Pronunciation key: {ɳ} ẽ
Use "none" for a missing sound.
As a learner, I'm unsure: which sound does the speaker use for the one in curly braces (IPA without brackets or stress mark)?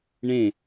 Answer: ɳ